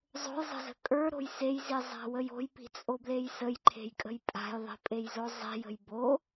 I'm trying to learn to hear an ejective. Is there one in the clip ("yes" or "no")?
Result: yes